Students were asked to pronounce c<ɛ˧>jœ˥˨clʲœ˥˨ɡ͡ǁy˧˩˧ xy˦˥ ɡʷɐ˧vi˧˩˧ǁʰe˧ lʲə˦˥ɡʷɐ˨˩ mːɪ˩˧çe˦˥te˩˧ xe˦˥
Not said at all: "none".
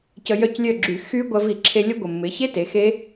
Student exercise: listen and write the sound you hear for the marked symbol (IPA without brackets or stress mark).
ə˧